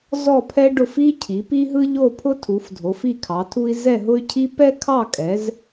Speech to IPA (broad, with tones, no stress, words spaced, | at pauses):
zɔ˦˨pʰɛ˦ɖʊ˦˨f i˦cʰi˩˧pi˦ɦɯ˦ʎ o˦˨pʰʊ˦tʰu˩˧fdʱo˩˧f i˦˨kʰɑ˩˧tʰu˦i̯ zɛ˦˨ɦʊ˦y̯cʰi˦ pɛ˦kʰɑ˦˨kʼɛ˩˧z